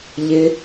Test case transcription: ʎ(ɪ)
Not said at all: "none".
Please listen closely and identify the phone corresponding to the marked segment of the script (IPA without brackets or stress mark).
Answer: ɪ